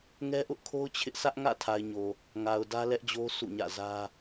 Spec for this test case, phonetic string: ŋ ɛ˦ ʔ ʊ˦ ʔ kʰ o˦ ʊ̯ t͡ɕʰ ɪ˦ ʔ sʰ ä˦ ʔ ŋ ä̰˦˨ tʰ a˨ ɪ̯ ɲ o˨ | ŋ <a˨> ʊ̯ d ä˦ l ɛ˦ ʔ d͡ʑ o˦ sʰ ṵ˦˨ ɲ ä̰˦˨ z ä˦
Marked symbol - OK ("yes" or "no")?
yes